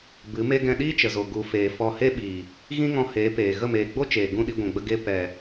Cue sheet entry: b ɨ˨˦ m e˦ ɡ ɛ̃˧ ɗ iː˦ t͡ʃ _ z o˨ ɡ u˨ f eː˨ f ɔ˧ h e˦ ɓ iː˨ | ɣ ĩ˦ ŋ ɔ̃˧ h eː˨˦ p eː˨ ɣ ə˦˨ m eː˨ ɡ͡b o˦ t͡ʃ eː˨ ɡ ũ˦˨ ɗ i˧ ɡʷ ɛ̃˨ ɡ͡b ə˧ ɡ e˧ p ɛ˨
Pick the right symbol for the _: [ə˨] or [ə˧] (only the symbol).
ə˨